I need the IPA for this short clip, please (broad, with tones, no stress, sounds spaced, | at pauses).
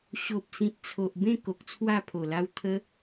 ɕ o˨ p̚ s ĩ˨ t̚ t͡sʰ o˨ ʔ b ẽ˥˧ k o˨ k̚ t͡sʰ w a˥˧ pʰ o˨˩ l a˦ w t̪ʰ ə˦